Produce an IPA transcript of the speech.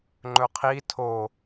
ŋ͡ǃ ɵ qʰ i tʰ o

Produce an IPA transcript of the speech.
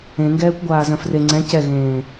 ẽ ŋ ɡ ɛː kʷ ɡʷ aː z œ̃ f r e ŋ͡ǀ ɛ̃ c ɛ ɣ ẽː

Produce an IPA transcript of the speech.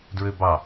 d ɹ ø b ɑ

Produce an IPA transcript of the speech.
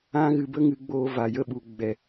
ã˦ ɣ ɨ˧ b ə˦ ŋ ɨ˧ ɡ͡b oː˧ v a˨ j ə˦˨ ɓ u˨ ɡ͡b ɛ˨

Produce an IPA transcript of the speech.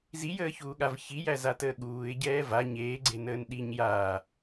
z i j əː ç uː ɠ a v ç i j æ z a t əː ɠ uː ɪ̯ ɟ ɛː v a ɲ eː ɡ͡ǀ e n əː n ɗ i ɲ j aː

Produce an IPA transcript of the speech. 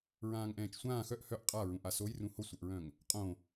ɹ ãː ŋ ʔ ɛ̃ː t͡ʃ sʷ ãː x œ ʔ h œ ʔ qʼ a ɹ ũ ʔ a s o j r ũ h o sʷ ɤ ʔ ɹ œ̃ ŋ | qʼ õ

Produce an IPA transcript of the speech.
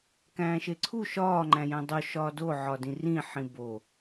k æ̃ː ʃ e ǀʰ u ʃ ɒː ŋ͡ǃ æ̃ j æ̃ dˤ o ʃ ɒː d o ʕ ɒ d ĩ r ĩ ħ ĩ b o

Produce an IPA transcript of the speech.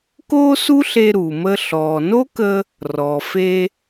k oː˥ s u˥ ɬ e˧ ɾ uː˩ m əː˧ ɬ ɔː˩ n o˥ k əː˧ | r ɔ˩ f e˧

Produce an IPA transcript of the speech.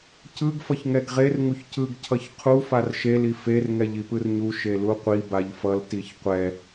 c ɯ ɡ f ʌ ç ŋ ɛ ɡ ʁ e r ŋ u ç c ɯ ɡ cʰ ʌ ç qʰ u f a r ʃ e l i f e r ŋ ɛ ʎ i p ɯ r ɲ u ʃ e l u qʷ i b a ʎ f ʌ l t i ç qʷ ɛ

